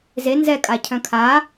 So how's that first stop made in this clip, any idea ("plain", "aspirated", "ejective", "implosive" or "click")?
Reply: ejective